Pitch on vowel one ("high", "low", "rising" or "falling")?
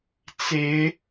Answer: rising